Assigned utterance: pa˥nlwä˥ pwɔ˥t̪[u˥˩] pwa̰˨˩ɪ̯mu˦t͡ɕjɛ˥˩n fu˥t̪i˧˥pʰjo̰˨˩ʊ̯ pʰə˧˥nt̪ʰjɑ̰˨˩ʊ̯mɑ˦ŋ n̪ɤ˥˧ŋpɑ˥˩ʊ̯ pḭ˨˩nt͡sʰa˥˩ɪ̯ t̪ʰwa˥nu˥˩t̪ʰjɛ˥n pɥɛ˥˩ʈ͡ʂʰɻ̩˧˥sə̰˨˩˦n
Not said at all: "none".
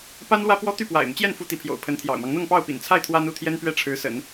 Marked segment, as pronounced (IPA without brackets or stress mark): y˥˩